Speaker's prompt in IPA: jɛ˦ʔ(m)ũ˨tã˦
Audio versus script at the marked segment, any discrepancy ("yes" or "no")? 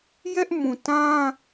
no